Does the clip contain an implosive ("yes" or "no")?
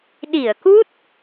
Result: yes